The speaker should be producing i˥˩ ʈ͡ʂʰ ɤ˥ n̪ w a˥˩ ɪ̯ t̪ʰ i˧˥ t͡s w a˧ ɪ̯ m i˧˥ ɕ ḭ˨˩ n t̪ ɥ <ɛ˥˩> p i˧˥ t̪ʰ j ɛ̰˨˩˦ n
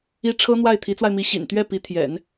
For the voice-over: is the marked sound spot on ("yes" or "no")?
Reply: yes